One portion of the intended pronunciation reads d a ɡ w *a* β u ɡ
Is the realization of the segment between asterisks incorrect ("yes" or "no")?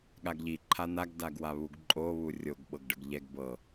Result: no